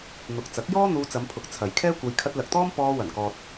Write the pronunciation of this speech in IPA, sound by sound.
n̪ʊ˨k̚ t͡sɐ˨˥k̚jɔː˥ n̪uː˧t͡sɐ˨˧mpʰʊ˨˥k̚ t͡sʰɐ˨jkʰɛː˥kʷɐ˧j kʰɐ˧t̚lɐ˨k̚t̪ɔː˥m pɔː˧wɐ˨˩nkɔː˨t̚

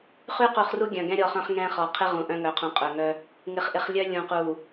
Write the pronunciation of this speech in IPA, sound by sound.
χy˦qu˨χru˦ ɡʲœ̃˨ɡɛ̃˦ɾʲɔ˦˨χœ̃˦χ ŋɛ̃˦χɔ˨ qʰɪ˦ ʁũ˨ʔœ̃˦ ŋœ˨qʰũ˨ qʼœ˨ŋœ˦ | ŋɪ˨χʔɪ˨χlʲœ˦ lʲũ˨qu˨

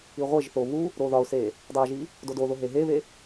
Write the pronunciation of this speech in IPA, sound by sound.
iʁʷeʒθo βu | ɾoðɒʊ̯se | dˤæʒi | dodoðo ɦeɦeβe

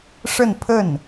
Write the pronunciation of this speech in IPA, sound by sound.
ʂə˥˧n pʰə˥˩n

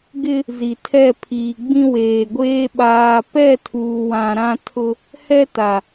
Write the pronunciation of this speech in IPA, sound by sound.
ɡɪ˦ | zi˨tʰɛ˦˨ pʰiː˨ɡ͡bĩ˦weː˨ɡʷeː˦ ɓaː˨pɛ˦˨ tʰuː˨wã˨ɾã˦tʰʊ˦ | hɛ˦ta˨

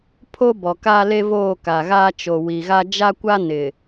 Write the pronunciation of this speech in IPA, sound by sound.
pʰo˦bɔ˨ ka˦ le˦voː˦˨ka˨ɣaː˦ t͡ʃo˨wi˨ɣa˦ d͡ʒa˦kʷa˦ nɪ˨

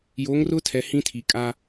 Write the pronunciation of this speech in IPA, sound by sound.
jo˨˦ŋrʊ˦tʰɛ˨ hĩ˦tʰi˨ kʼa˦

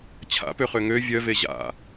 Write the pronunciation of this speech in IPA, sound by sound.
t͡ɕʰa̰pøχø ŋø vʲœve ʑa̰

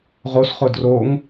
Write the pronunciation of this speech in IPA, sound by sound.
ʁosχʊ droŋ

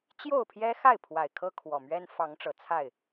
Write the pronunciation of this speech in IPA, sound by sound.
t͡ɕjo˥˨ʊ̯pʰjɛ˦xa˥˨ɪ̯pʰwa˨˩ɪ̯ kʰɤ˦kʰwɔ˨˩mɥɛ˦n fɑ˨˦ŋʈ͡ʂɤ˨˩ t͡sʰa˥˨ɪ̯

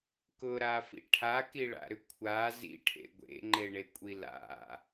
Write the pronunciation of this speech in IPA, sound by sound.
kʊɾafḭ ʈʰakiɭa̰ɾʏ kʷʰa zḭʈʰḛ ɡʷḛŋ͡ǃeɳekʷʼi la̰

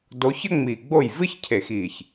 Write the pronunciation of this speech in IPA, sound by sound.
do˨˦çə˥ŋ͡mi˨˩ɡ͡bo˥˩j vɨ˥çcʰe˨˩˦xiː˨˩ç

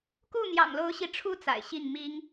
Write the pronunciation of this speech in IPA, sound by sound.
ku˥˩n̪jɑ̰˨˩ŋlo˧˥ʊ̯ɕi˧˥ ʈ͡ʂʰu˥t͡sa̰˨˩ɪ̯ ɕi˥˩ŋmi˥ŋ

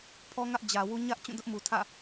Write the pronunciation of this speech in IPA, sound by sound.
pʰɔ˦ŋä˦ʔd͡ʑä˨wu˦ ɲä˦ʔ t͡ɕũ˦˨dʊ˦ʔmu˨ tʰä̰˦˨

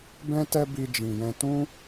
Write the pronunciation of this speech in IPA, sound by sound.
bɛ̃˦tɛ˦ bi˧d͡ʒĩ˨jɛ̃˧ tũ˦

